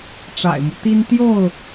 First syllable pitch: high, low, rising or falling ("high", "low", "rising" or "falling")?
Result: low